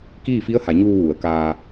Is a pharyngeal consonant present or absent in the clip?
absent